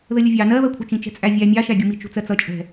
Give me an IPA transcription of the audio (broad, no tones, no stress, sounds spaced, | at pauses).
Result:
ð ə lʲ ʊ vʲ ɑ n ɜ β ɜ kʷʰ ʌ t͡ʃ ĩ t͡ʃ ɛ̤ t͡sʼ æ vʲ æ mʲ ɑ ʃ æ ɡʲ u m i t͡ʃ ṳ t͡s ɜ t͡s ʌ t͡ʃʼ ɛ̤